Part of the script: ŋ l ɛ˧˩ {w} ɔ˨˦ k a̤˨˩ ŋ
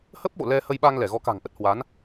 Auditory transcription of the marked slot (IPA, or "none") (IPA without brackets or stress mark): ɣ